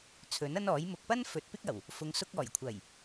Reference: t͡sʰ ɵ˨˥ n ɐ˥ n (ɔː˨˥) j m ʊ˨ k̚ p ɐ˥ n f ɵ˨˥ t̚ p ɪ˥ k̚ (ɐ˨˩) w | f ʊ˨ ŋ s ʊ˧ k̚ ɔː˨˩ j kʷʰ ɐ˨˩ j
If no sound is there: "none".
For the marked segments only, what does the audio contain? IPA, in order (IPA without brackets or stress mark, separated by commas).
ɔː˨˥, ɐ˨˩